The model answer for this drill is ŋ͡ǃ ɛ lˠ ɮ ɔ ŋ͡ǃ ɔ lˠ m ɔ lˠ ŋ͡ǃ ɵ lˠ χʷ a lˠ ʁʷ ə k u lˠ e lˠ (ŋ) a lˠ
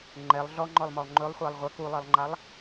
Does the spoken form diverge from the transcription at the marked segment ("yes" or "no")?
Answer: yes